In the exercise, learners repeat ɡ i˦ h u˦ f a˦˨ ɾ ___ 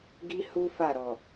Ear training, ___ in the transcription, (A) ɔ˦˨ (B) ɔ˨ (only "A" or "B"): B